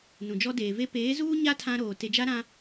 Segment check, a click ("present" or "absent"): absent